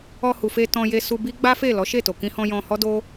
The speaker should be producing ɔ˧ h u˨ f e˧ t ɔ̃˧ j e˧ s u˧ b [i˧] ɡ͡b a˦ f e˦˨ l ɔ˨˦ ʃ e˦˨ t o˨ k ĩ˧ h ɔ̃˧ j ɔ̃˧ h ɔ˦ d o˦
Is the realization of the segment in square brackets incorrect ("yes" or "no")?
yes